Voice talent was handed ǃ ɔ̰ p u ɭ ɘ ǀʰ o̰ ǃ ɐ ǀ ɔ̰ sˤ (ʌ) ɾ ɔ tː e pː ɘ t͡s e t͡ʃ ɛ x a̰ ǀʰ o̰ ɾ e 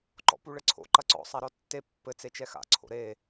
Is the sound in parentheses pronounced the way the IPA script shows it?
no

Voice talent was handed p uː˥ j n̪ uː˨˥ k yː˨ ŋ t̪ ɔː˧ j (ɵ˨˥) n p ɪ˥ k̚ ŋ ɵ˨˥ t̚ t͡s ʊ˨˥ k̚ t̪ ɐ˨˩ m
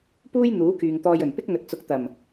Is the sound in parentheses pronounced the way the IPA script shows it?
no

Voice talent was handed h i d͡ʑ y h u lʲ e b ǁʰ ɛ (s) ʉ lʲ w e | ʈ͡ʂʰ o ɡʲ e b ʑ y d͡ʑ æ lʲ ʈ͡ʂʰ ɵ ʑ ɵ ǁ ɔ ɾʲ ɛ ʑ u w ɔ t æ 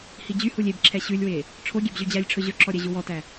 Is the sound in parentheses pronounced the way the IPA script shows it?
no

